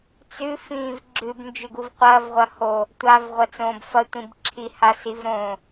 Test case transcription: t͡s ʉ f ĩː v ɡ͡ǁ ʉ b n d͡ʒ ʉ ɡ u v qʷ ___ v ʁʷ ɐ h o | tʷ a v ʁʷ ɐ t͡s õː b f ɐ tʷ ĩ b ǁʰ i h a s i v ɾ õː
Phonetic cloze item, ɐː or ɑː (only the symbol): ɐː